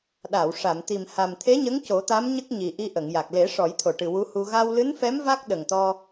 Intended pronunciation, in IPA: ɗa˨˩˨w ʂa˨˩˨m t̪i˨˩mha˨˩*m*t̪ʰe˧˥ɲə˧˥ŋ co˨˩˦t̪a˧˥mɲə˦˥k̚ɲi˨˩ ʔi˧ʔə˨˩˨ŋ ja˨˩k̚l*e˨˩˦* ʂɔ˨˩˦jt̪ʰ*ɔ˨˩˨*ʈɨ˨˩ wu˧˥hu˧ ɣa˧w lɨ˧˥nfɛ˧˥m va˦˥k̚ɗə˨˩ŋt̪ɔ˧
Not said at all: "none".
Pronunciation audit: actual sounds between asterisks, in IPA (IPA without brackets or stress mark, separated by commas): m, e˨˩˦, o˨˩˨